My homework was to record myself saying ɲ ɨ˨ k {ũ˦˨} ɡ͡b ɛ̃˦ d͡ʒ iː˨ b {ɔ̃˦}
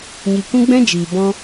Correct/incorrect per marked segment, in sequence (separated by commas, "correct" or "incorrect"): incorrect, correct